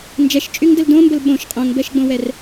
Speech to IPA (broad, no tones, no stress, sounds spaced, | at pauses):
n d͡ʒ ɛ ʃ t͡ʃʼ y ŋ d ə l d õ m b ə l ɓ õ ʃ qʼ õ ŋ b ɛ ʃ ɡ͡b õ w ɛ r